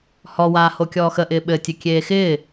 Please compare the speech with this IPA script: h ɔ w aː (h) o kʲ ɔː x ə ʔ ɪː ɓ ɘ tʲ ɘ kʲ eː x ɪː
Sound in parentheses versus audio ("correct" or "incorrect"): correct